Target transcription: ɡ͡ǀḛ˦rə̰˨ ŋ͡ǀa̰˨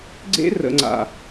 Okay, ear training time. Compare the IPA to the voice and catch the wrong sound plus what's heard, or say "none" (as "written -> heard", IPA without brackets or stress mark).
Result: none